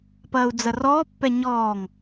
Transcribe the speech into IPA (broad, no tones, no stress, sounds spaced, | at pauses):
p ɐː u̯ d͡z ɐ r ɔː pː ɛ ɲ ɔː ŋ